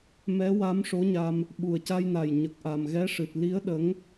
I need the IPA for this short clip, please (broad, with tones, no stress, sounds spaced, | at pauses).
m ɛ˧˥ w a˧˥ m ʂ o˧˥ ɲ a˧ m | ɓ u˨˩ ə̯ c a˧ j n a˨˩ j ɲ ə˨˩ k̚ ʔ a˨˩ m ɣ ɛ˧˥ ʂ ɨ˨˩ t̚ l i˧˥ ə̯ ɗ ə˧˥ ŋ